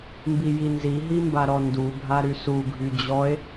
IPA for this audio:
m b i j i n z i ɦ i m b a ɾ ɔ n d u bʱ a ɾ y s u ɡʱ y d͡ʑ ɔ e̯

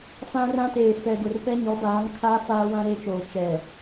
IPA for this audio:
f ã˦ r ã˦ t eː˨ f ɛ˨ ɡ ʊ˨ r p ɛ˦ ɲ ɔ˨˦ b aː˨˦ ŋ kʰ aː˦ f aː˦ w ã˦ ɾ eː˦ t͡ʃ oː˨ t͡ʃ ɛ˨

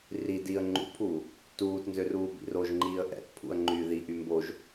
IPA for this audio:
r i d i ə̯ ŋ͡ǃ ṵ pʰ uː | t uː t n z ø r uː b ḭ r o ʒ ŋ͡ǃ iː ə̯ ʔ ɛ̰ t pʰ ṵ ə̯ ŋ͡ǃ yː ð i ʔ y m b o ʒ

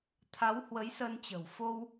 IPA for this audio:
t̪ʰ a˨˦ w h w ə˨˦ j s ə˧ n t͡ɕ ə̤˨˩ w f o˧ w

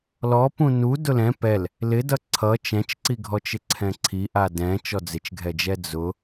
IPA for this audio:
l ɔ p ũ n u d ʊ l ɛ̃ p ɛ l | l ɪ d ʌ ǀʰ ʌ t͡ʃ ɛ̃ t͡ʃ ǀ i ɡʱ ɔ t͡ʃ ɪ ǀʰ ɛ̃ ǀʰ i ʔ a d ɛ̃ t͡ʃ ɔ d͡z ɪ t͡ʃ ɡʱ ɛ d͡ʒ ɛ d͡z ʊ

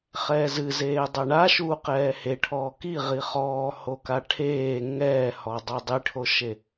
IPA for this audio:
χ ɛː z ɨ z eː dˤ ɛ ɳ a ʃ uː q ɛː h e ʈʰ ɔː k i ʁ i χ ɔː h o k a ʈʰ eː ŋ ɛː h ɔ dˤ o dˤ i ʈʰ o ʃ e

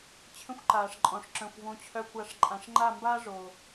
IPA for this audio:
t͡ɕʰ ə̃˦ xʷ ǃ aː˨ ʂ ǃʼ ɔ̃˨ ʂ ǁ œ̃˨ xʷ v õ˧ t͡ɕʰ œ˧ kʷ a˨˦ ʂ ǃʼ ã˨ ʂ ŋ͡ǃ a˦˨ m b aː˦ ʐ oː˨

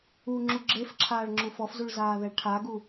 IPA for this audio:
u ŋ͡ǁ u ɡ͡ǁ e f ǁʰ aː ɭ ŋ͡ǁ u f ɔ f z u ɭ z aː ð ɛ ɭ ʈʰ a ɡ u

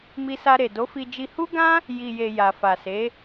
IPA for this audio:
m i˧ s a˧ ɾ e˨ d o˨˦ f i˧ d͡ʒ i˧ h u˦ ɡ ã˦ | j i˨ j e˨ j a˨ f a˨ s e˨˦

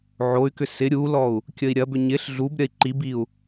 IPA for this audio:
ʕ o y̯ k ʏ s ɪ ɾʲ u l ɔ u̯ | kʲ ə i̯ ɾʲ ɐ b ʏ ɲ ɪ ɬ ɮ u b ɾʲ ɐ i̯ ǃ i b i u̯

